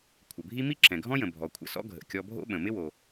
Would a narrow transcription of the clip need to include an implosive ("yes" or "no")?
yes